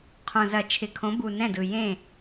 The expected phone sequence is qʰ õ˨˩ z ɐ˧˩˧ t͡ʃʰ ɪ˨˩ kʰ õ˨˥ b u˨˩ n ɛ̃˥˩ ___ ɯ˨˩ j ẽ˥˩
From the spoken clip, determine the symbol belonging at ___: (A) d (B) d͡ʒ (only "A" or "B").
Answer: A